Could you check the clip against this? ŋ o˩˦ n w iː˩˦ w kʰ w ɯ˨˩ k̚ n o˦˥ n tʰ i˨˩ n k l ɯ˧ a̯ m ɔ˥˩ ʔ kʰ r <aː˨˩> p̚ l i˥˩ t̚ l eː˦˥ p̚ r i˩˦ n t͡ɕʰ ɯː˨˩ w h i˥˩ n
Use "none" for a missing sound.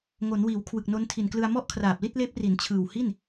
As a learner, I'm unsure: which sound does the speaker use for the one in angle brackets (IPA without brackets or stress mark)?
aː˨˩